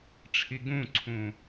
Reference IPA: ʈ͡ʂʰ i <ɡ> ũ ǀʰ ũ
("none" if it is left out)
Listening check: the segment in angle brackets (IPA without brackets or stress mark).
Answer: ɡ